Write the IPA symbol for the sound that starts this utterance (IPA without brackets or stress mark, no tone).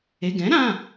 e